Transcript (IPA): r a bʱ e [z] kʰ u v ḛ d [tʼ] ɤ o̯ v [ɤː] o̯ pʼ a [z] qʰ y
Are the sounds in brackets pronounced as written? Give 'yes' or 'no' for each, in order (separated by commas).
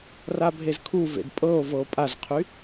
yes, no, no, yes